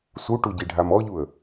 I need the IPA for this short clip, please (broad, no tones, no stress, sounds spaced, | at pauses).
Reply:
s u ʈ u ɟ i ɖʱ a m ɔ ʎ u ə̯